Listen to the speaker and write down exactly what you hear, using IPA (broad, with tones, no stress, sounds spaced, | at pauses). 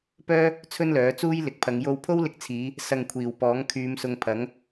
p œː˥ | t͡sʰ ɵ˥ n l œː˨˥ t͡s uː˥ j l ɪ˨ k̚ pʰ ɐ˨˧ ŋ j o˧ w pʰ o˥ w l ɪ˧ k̚ t͡sʰ iː˨˧ | s ɐ˨ ŋ kʷʰ iː˨˩ w p ɔː˨˥ ŋ kʰ yː˨˧ m s ʊ˨˧ ŋ pʰ ɐ˨˥ ŋ